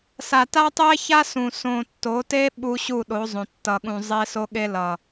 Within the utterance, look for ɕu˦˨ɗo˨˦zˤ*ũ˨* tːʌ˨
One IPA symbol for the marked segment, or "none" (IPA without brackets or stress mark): õ˨